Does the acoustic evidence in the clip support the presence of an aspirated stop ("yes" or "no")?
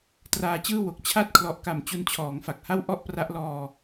yes